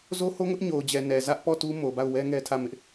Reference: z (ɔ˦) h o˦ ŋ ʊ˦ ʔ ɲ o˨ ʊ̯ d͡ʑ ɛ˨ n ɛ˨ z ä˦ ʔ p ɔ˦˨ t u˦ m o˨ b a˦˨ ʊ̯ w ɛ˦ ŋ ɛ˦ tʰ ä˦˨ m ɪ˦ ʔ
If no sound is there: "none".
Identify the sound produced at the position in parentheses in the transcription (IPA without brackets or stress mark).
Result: o˦